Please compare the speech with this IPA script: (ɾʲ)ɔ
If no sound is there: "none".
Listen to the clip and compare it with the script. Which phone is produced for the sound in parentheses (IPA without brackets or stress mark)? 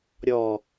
ɾʲ